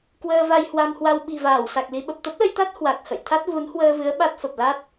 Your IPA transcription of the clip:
k w əː˧ v a˧ j h w a˧ m h w a˧ w ɓ i̤˨˩ v aː˧˩ w s a˨˩ k̚ l i˧ ɓ ə˨˩ p̚ t̪ ə˦˥ p̚ l ə˧ j t̪ a˦˥ t̚ h w a˨˩ k̚ h ə̰˧˨ j t̪ʰ a˦˥ t̚ v u˨˦ n h w əː˧ v ɨ˨˦ ə̯ ɓ a˦˥ t̚ f ə˨˩ p̚ l a˦˥ t̚

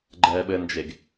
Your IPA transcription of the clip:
ɡ͡ǃ ɛː ɓ ɘ n d͡ʒ e ɡ

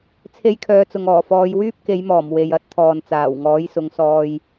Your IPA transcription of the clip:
t͡sʰ e˧ j kʰ œː˨˧ t͡s ʊ˨ ŋ ɔː˨˩ f ɔː˨˧ j w yː˥ p̚ k e˨˧ j m ɔː˨˩ m w e˨ j ɐ˨˥ t̚ t̪ʰ ɔː˨ n t͡s aː˨˩ w ŋ ɔː˨˥ j s ʊ˨˧ ŋ s ɔː˧ j

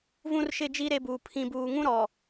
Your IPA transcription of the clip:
v ũ˦ r ʃ ɪ˦˨ d͡ʒ i˦ ɾ e˦ b uː˨ pʰ ĩ˦˨ b uː˨ ŋ ũ˦ ɾ ɔ˨

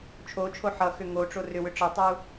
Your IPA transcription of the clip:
t͡ʃʰ o t͡ʃʰ o ħ ʌ x ʏ ŋ o ʈ͡ʂ o r ʏ w ʏ ʈ͡ʂ ʌ tˤ u

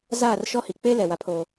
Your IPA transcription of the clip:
z aː˦˨ r ʃ ɔ˦ h i˨ k͡p e˦ l ɛ˨ w a˦ pʰ oː˦

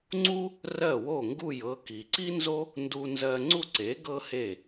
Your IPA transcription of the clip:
ŋ͡ǀ u˥ | r ɜ˥˩ w o˥˩ ŋ ɡ u˥˩ j ɤ˧ k i˩ ǀ i˥ n z o˥ | n d u˧ n z ɜ˧ ŋ͡ǀ u˥˩ ǀ e˩˥ ɡ ɤ˥ h e˥˩

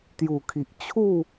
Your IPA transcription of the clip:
t̪ j u˨˩ kʰ i˨ ʔ t͡ɕʰ u˥˧

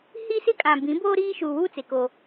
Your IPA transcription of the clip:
h i˦ s ɪ˦ kʼ ã˨ b ĩ˨˦ b o˦ ɾ iː˦ ʃ uː˨ w uː˦ t͡s e˨ k o˦

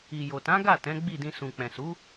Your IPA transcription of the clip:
i˨ j o˨ t ã˨˦ ɡ a˦˨ t ɛ̃˨˦ ɡ͡b i˦˨ d ĩ˧ s ũ˨ k͡p ɛ̃˨ s u˨˦

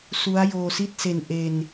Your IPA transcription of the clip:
s u˦˥ a̯ j oː˧ s i˥˩ t̚ s e˧ n ʔ e˧ n

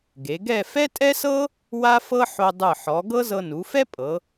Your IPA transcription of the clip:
ɡ e˩˧ ɡ ɛ˥˧ f ɛ˥ tʼ ɛ˥ s ɤ˥ | w a˥ f ɤ˥ ħ o˧ dˤ ɯ˧˩ ħ ɔ˩˧ ɡ ɤ˥ z ɤ˧ n u˩˧ f ɛ˥ pʼ ɤ˩˧

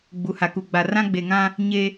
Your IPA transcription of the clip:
ɡ͡b u˨ h a˨ k u˨ ɡ͡b a˨ r ã˦ ɡ͡b e˨ ŋ ã˦ | ɲ e˦

